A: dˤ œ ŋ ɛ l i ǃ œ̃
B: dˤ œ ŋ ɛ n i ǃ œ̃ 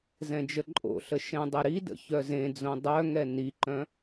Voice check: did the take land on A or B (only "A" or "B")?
B